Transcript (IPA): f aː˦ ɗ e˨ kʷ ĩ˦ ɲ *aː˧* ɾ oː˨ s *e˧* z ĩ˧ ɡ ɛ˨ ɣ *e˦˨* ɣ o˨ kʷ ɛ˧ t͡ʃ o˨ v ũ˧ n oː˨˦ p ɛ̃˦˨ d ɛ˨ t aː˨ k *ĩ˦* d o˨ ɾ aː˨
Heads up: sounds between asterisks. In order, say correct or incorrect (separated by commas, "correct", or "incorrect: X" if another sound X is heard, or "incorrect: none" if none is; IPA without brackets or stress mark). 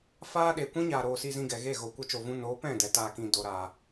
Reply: incorrect: aː˨, incorrect: i˧, correct, incorrect: ĩ˨